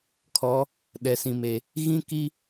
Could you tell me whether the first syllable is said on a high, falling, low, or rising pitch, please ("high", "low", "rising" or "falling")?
rising